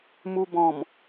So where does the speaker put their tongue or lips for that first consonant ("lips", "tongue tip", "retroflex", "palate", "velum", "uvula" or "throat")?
lips